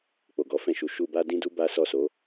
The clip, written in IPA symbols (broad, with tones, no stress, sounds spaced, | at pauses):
k͡p o˨ ɡ ɔ˨˦ f ɛ̃˦˨ ʃ u˨˦ ʃ u˧ b a˦ d ĩ˦ d u˦ b a˦ s ɔ˦˨ s o˨˦